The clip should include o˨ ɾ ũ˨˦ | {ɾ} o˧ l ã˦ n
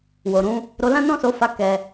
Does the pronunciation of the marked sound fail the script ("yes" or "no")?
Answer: no